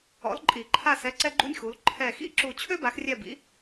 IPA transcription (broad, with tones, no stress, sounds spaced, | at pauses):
ɔ̰˨˥ l ǃʼ i˨˩˦ ǃʰ a˦˨ s ɛ˧˥˧ ǀ ɛ˥ ɡ͡ǃ ṵ˥ nʲ x u˨˥ l ǃʰ ɛ˦˨ x ḭ˥ ǁ u˦˨ t͡ɕʰ ø˥ b a˨˥ x rʲ ɛ˦˨ b ḭ˨˥